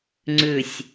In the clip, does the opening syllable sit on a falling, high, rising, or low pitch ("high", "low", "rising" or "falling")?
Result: falling